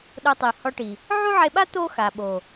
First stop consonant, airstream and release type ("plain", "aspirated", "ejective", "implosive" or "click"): implosive